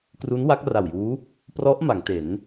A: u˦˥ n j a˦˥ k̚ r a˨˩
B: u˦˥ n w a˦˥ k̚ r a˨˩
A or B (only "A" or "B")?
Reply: B